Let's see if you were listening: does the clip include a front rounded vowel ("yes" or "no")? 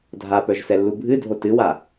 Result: yes